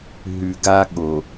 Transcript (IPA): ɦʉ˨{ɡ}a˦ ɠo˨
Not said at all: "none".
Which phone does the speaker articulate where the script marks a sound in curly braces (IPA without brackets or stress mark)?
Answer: ɡ